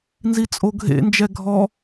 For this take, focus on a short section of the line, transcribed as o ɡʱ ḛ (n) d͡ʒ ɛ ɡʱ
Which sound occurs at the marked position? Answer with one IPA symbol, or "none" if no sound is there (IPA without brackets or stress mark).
n